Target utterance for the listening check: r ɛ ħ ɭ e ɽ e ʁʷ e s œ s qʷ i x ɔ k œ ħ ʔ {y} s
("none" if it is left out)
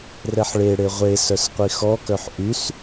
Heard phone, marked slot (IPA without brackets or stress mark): y